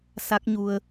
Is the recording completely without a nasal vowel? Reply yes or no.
yes